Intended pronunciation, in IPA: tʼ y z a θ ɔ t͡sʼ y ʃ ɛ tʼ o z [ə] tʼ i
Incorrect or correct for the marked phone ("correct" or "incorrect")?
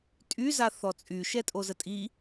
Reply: correct